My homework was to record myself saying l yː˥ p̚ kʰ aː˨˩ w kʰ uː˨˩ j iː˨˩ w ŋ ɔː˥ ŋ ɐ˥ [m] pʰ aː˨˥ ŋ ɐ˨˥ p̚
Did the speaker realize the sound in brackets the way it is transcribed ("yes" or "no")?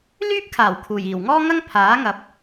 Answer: no